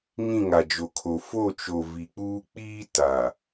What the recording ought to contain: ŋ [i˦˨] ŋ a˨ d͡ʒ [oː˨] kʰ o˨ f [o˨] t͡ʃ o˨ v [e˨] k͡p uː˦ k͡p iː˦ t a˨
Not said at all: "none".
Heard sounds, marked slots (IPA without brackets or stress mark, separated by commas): ĩ˦˨, o˨, o˦˨, i˨